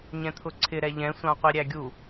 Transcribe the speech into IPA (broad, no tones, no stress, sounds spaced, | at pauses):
ɲ ɛ̃ t̪ʰ ʊ ǀʰ ɪ ɾ ɛ ʎ ɛ̃ sʷ ɑ̃ qʷ i ɾʲ æ ɡʲ u